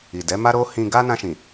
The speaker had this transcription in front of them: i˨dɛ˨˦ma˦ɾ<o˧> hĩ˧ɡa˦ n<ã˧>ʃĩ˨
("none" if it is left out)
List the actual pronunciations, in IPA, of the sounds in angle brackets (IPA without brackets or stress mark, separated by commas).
o˦, ã˧